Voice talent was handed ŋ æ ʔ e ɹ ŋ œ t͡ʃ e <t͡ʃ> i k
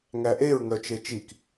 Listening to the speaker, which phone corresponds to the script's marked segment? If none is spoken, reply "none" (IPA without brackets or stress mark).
t͡ʃ